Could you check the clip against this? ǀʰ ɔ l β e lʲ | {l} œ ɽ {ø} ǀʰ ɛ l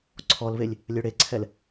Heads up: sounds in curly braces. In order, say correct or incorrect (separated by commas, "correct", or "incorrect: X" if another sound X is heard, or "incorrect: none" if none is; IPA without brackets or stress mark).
incorrect: lʲ, incorrect: e